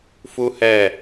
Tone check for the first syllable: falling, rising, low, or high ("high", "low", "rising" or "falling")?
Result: high